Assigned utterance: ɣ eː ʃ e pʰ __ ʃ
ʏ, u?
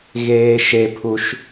u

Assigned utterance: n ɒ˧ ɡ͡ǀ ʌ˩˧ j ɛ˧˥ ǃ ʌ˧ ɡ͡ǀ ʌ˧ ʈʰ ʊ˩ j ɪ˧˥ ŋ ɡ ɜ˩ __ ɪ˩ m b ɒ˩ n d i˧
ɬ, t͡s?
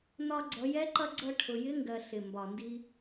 ɬ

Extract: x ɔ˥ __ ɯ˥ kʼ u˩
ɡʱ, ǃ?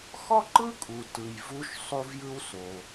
ǃ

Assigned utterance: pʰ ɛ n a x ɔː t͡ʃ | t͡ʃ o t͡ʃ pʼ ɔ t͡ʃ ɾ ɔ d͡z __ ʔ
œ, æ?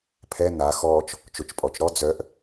œ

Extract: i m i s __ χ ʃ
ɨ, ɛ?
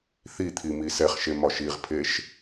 ɛ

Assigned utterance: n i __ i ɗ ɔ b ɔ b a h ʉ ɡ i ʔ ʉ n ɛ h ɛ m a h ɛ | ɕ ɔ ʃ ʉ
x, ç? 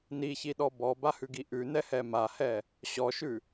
ç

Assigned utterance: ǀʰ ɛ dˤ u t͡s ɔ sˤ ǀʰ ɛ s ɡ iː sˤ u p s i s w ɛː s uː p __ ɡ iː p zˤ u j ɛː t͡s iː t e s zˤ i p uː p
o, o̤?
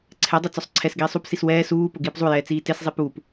o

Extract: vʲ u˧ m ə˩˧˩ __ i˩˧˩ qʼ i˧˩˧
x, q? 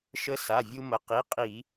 q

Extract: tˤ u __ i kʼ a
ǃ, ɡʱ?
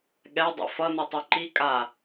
ǃ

